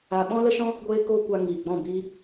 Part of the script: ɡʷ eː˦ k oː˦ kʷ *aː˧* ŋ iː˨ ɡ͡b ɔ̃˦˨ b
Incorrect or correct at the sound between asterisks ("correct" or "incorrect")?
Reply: incorrect